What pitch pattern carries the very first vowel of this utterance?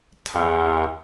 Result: low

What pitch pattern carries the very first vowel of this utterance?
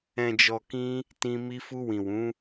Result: low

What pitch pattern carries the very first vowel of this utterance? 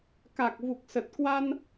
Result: low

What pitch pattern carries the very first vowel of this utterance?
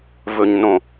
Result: low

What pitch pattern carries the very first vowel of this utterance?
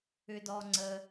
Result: high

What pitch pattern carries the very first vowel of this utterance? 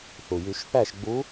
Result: low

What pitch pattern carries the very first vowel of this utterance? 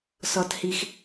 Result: high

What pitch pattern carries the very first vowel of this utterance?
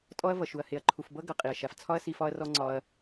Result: high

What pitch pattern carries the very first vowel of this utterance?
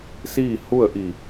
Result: falling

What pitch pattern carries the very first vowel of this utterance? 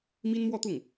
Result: high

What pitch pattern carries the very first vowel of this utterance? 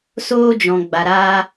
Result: high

